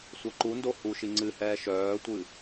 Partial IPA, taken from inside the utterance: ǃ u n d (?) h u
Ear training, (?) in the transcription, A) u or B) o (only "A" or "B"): B